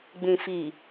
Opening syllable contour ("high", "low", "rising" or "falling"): low